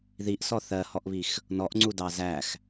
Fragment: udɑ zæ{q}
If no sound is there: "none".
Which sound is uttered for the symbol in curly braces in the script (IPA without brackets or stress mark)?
x